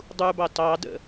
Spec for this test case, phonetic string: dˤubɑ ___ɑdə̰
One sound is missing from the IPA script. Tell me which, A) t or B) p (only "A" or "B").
A